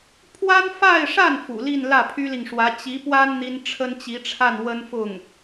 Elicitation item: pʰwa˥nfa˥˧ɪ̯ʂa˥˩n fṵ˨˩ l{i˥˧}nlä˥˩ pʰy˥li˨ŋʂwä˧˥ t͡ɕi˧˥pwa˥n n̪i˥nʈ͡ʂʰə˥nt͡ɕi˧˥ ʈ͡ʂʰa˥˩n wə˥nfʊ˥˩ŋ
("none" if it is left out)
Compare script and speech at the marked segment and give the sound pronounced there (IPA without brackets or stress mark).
i˥˧